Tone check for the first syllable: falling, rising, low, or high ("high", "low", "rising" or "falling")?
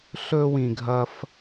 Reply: high